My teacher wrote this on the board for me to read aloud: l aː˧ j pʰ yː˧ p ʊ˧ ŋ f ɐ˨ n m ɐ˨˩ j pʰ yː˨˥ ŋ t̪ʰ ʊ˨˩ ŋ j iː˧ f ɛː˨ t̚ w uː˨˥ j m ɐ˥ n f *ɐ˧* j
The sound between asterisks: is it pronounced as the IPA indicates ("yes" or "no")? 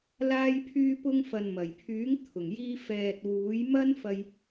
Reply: yes